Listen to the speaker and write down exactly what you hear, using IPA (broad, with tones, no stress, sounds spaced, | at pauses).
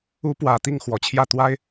u˧˥ p w ä˨˩ t̪ i˥˩ ŋ x w ɔ˨˩ t͡ɕʰ j ä˥˩ t̪ w a˥ ɪ̯